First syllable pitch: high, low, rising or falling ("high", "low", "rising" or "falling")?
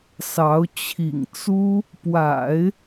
rising